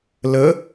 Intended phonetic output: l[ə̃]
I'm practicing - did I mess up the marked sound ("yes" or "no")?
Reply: yes